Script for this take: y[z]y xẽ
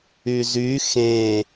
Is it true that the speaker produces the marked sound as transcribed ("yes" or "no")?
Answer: yes